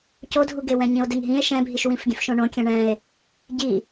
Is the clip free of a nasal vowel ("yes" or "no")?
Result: no